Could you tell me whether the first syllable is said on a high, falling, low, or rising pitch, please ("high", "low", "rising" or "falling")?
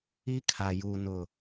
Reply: high